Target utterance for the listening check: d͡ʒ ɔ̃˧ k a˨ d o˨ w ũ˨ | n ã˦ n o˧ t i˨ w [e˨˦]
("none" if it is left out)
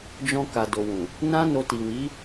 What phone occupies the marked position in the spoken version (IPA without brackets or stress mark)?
i˨˦